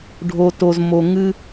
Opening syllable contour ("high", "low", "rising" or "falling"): low